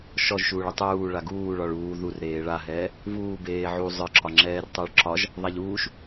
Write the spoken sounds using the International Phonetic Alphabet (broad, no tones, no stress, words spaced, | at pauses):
ʃɔʒʃuːɭi tˤuː ɭaɡuː ɭɒɭuː ður ɾeːɭaɦɛː | vuːbeː ʕu zˤə˞ǁɒ ŋ͡ǁɛːrtˤə˞ɭǁɒʒ | ðˤaʎuːʃ